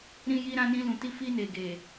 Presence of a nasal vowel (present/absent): present